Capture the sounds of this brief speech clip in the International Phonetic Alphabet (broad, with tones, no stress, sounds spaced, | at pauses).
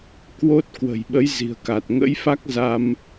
k w o˦˥ t̚ k w ə̤˨˩ j ɓ ə˨˦ j z i̤˨˩ ə̯ k a˨˩ t̚ ŋ ə̰˧˥ j f a˦˥ k̚ z a˧ m